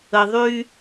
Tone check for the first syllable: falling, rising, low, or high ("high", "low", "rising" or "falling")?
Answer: low